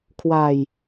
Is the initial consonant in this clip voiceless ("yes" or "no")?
yes